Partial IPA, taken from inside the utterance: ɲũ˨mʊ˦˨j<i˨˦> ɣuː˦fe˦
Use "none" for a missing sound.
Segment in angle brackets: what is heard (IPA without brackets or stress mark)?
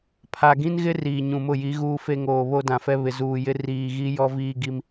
i˨˦